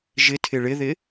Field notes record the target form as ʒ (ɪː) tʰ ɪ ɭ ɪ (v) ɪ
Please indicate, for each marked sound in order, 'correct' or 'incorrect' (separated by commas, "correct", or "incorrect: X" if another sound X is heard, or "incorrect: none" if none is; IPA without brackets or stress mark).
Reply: incorrect: ɪ, incorrect: ð